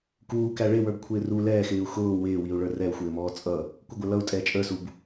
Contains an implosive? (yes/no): no